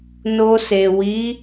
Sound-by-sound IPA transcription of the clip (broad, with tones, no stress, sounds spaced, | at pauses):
n o˧ s e˨ w i˨˦